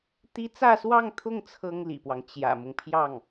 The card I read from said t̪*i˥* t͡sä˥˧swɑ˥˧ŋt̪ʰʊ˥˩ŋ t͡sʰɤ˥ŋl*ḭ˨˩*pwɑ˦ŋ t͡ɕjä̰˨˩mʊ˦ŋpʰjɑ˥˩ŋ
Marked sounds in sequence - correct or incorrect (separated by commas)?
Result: correct, correct